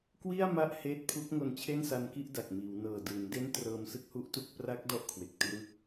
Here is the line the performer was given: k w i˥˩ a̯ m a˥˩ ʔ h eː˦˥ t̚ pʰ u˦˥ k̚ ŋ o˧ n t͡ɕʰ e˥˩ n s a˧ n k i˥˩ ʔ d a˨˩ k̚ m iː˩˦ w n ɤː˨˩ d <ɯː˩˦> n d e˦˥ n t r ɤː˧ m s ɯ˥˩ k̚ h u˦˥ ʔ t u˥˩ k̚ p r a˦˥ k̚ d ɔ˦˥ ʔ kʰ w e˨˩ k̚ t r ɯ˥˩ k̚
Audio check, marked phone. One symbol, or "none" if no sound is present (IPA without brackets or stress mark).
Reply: ɯː˩˦